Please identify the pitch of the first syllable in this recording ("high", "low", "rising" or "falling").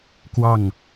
falling